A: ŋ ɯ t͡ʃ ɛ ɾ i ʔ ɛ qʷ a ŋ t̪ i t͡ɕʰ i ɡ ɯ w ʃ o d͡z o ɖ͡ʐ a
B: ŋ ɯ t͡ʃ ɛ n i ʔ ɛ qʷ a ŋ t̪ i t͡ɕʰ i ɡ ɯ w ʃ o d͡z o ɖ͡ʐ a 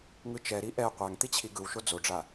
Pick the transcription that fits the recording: A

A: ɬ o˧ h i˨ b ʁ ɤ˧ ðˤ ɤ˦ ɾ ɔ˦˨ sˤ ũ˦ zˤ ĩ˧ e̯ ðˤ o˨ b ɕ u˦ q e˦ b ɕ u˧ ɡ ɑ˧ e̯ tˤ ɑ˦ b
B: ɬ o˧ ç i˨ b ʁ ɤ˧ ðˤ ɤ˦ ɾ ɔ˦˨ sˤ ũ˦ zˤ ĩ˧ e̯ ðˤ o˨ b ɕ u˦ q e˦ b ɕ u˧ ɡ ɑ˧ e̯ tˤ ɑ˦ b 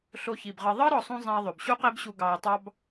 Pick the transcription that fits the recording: B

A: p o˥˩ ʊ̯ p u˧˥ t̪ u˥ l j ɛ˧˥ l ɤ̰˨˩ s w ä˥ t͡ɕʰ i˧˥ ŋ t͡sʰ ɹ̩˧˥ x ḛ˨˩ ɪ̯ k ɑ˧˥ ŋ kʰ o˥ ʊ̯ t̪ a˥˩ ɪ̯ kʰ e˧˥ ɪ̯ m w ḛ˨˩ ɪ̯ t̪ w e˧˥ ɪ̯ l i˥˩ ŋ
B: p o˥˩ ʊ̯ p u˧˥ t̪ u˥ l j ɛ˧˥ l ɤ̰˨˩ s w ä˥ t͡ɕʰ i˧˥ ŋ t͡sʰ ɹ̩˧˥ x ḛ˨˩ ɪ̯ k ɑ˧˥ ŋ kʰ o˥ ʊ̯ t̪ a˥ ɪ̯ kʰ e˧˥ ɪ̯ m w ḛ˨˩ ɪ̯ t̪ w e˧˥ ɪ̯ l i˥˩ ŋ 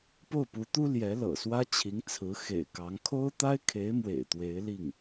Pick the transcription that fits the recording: B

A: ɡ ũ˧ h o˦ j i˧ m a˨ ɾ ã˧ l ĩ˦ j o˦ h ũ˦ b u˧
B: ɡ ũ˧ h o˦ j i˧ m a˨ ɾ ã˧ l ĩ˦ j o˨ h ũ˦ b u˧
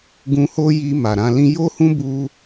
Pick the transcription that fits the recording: A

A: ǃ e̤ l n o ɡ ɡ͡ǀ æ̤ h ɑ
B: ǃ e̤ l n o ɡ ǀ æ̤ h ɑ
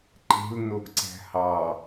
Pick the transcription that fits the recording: B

